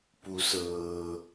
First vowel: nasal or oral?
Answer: oral